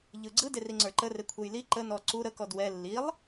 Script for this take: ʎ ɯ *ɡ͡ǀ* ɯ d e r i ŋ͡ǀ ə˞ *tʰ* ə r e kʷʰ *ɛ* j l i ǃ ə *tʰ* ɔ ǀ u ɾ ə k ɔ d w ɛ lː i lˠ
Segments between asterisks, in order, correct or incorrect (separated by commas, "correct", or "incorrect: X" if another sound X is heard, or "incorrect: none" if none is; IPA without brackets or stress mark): correct, incorrect: ǃ, correct, incorrect: n